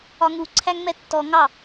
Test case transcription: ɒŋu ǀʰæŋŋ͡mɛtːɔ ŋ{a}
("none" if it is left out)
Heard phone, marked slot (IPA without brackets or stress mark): ɑ